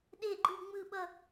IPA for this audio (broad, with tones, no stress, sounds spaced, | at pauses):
ɗ e˥˨ ɡ͡ǃ ɯ˥˨ ŋ͡m ɯ˥˨ ɓ ʌ˥˨